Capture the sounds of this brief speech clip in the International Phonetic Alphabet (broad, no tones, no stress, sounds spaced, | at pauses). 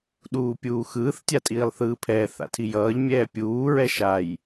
ɗ uː pʲ uː x ɯː θ tʲ a tʼ iː lˠ θ ɯː pʰ ɛː θ a̰ tʰ i j ʌː ʎ mʲ ɛː pʲ uː ɹ ɛ ʃ a j